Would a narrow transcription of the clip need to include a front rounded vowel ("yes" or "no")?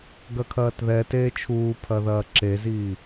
no